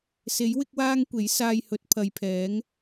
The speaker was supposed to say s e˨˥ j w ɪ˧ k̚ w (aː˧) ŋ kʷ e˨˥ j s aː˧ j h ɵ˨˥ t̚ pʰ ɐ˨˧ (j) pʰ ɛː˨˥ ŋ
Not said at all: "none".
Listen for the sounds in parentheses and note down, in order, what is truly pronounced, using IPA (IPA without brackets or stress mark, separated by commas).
aː˧, j